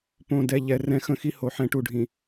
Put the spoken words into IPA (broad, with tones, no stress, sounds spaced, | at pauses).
p õ˨ d ɛ˨ ʎ ɛ˦ r ɛ̃˦ x ə̃˦ x i˦ h o˨ ħ ɛ̃˦ ʈ u˨ ɖʱ ĩ˨